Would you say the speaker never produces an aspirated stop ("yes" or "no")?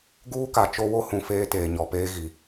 yes